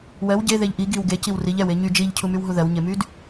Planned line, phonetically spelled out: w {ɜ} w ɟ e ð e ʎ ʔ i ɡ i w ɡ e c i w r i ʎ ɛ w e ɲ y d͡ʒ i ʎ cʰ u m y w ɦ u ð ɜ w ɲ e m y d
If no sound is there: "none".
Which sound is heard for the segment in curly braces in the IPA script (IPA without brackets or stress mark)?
ɜ